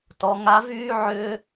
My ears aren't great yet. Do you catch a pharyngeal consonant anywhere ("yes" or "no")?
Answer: yes